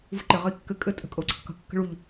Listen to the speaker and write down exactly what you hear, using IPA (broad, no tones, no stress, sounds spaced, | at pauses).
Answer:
v ṳ ǃ ɪ ʁ ɘ i̯ kː ɘ kʼ ɘ tʼ ə̤ kʼ ɤ u̯ ǀ ə q k ə̤ kː ə̤ ɭ u ʎ